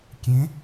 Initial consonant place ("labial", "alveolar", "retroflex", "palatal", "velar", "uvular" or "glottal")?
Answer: velar